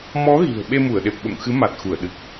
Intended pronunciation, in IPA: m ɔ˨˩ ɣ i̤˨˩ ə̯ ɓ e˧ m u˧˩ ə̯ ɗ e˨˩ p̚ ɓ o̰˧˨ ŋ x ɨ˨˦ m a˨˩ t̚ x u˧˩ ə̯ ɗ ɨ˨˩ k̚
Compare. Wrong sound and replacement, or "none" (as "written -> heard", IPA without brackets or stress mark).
ɔ˨˩ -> ɔ˨˦